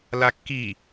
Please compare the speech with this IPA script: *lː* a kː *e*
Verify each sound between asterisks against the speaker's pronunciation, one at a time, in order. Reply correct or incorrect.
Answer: incorrect: l, incorrect: i

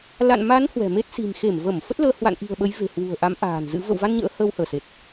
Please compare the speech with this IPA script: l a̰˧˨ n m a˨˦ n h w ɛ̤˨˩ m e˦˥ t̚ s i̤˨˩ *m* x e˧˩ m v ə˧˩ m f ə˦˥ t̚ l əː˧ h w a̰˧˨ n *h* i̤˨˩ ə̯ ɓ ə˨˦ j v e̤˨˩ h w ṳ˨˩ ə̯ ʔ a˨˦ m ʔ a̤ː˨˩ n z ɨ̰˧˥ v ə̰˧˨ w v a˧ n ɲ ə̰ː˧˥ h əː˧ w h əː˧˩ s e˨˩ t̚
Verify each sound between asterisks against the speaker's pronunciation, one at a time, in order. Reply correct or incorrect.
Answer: correct, incorrect: ʔ

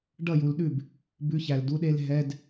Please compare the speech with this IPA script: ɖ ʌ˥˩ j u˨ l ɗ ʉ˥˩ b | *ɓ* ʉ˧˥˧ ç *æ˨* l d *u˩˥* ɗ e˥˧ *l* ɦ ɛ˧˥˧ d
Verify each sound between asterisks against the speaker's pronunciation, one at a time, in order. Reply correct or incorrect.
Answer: incorrect: b, correct, incorrect: u˧˥˧, correct

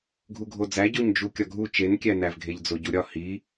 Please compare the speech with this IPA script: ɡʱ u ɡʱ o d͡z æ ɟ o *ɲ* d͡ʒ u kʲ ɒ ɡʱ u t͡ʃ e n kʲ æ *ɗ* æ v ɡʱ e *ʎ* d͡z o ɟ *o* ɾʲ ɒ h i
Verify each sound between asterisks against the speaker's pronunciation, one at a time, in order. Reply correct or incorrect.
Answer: correct, incorrect: n, correct, incorrect: u

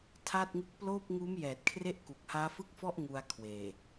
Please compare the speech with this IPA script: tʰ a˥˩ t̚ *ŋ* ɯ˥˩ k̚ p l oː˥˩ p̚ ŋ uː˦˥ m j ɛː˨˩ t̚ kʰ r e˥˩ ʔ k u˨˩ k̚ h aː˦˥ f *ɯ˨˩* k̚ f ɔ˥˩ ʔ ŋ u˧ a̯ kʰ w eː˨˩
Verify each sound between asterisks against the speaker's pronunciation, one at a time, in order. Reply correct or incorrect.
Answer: correct, incorrect: ɯ˥˩

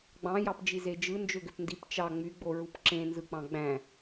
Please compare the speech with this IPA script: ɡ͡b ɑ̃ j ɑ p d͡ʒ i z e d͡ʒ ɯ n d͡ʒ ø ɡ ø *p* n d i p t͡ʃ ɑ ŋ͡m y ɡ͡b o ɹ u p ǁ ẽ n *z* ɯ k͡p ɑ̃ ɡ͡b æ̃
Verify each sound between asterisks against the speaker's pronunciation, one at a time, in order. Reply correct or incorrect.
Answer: correct, correct

